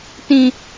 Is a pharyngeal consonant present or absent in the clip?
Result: absent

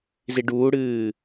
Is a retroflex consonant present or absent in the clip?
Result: present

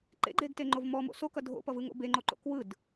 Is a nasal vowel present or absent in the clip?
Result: absent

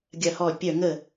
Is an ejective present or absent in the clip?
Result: absent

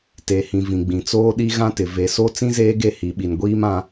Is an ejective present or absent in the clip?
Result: absent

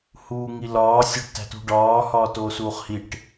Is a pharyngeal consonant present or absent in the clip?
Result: absent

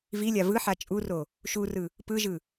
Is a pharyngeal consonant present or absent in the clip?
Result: present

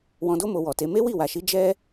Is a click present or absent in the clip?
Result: absent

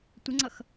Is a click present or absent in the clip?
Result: present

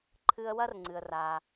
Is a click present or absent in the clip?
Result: present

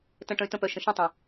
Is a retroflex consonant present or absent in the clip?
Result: present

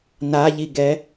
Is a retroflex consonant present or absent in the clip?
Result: absent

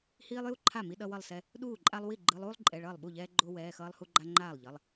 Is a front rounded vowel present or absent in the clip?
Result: absent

